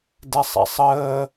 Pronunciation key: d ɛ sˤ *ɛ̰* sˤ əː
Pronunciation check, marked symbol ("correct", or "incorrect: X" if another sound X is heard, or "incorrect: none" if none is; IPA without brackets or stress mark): correct